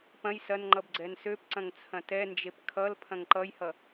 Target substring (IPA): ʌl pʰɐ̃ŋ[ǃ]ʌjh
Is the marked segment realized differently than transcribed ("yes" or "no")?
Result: no